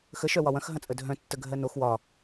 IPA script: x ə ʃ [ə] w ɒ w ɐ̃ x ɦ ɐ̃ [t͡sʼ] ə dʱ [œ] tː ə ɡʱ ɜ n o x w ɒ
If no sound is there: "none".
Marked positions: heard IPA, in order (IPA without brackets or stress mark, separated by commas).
œ, t͡sʼ, œ̃